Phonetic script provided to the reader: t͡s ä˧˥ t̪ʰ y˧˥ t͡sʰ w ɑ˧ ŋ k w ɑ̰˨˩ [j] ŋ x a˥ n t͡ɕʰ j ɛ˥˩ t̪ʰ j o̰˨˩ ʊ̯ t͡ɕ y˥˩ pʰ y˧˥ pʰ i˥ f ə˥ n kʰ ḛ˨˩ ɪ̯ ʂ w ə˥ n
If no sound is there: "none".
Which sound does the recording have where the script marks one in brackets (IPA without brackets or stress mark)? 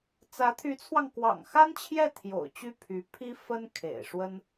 none